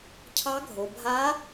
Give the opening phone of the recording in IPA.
cʰ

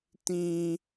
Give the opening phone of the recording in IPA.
t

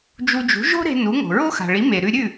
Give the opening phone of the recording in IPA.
d͡ʒ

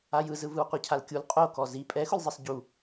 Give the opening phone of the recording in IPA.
a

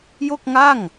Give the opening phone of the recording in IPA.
j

